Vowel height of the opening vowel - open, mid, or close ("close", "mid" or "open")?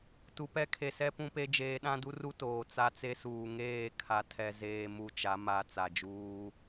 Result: close